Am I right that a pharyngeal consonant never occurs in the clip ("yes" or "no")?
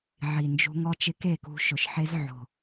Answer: no